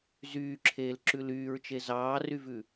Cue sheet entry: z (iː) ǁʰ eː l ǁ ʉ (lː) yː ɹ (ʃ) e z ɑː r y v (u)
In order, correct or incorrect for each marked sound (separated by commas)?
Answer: incorrect, incorrect, incorrect, incorrect